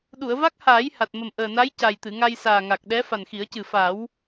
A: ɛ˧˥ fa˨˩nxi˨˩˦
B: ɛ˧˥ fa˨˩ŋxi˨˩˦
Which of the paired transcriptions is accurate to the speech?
A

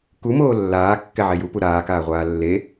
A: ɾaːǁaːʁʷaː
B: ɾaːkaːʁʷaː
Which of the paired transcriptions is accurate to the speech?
B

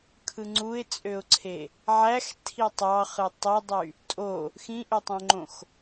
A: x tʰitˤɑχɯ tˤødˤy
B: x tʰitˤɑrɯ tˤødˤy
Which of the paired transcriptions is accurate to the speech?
A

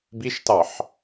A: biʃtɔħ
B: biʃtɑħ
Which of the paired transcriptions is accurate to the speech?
B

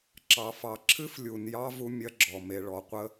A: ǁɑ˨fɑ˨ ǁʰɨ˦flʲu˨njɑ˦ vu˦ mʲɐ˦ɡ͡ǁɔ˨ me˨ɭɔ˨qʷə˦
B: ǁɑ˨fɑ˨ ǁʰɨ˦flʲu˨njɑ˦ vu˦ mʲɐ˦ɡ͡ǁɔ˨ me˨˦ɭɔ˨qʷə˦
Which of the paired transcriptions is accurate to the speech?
A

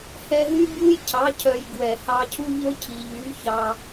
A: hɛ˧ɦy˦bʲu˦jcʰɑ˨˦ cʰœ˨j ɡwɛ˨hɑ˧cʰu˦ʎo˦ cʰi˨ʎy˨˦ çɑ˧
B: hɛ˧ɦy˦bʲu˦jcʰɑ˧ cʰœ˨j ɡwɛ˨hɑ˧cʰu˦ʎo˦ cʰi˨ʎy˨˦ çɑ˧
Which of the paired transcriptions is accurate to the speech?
A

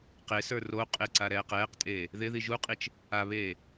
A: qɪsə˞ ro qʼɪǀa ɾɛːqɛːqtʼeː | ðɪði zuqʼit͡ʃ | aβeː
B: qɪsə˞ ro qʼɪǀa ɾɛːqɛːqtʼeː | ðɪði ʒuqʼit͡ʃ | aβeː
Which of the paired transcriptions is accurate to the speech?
B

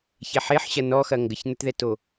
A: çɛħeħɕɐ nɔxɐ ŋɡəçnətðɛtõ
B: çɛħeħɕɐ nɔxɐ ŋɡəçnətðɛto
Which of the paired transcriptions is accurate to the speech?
B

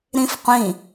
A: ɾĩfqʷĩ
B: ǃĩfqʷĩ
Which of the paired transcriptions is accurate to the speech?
A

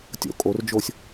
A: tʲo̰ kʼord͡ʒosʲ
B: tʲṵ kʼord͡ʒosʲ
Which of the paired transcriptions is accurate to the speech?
A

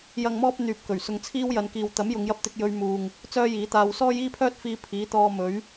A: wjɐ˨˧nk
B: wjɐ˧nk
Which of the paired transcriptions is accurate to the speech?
A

